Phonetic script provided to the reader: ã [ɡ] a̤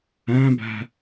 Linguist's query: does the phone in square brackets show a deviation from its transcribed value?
yes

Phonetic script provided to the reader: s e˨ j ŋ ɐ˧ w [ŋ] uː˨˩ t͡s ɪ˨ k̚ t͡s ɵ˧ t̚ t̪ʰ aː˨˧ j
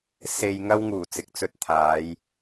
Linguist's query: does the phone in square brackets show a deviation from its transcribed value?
no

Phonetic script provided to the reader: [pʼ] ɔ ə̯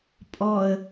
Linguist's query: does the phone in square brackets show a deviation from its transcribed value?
no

